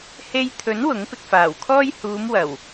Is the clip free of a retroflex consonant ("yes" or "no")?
yes